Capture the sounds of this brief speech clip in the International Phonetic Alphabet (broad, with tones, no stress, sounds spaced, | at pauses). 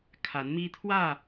kʰ a˨˦ n m i˦ t̪ʰ w ä˥˨